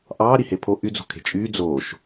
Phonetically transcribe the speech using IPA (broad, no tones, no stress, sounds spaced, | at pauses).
ʔ ɑː ɾ i h e pʰ o ʔ y d͡z o̤ kʰ e̤ t͡ʃʼ yː d͡z oː ʃ